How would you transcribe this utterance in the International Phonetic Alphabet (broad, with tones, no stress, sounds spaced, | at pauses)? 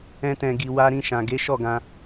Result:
ɛ̃˧ t ɛ̃˨ ɡ i˨ w a˧ ɾ ĩ˧ ʃ ã˨ ɡ e˨˦ ʃ ɔ˦˨ ɡ ã˧